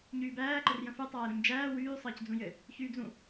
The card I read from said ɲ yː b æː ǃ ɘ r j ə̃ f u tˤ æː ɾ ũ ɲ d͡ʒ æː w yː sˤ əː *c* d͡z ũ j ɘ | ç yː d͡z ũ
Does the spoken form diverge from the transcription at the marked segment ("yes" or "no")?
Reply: no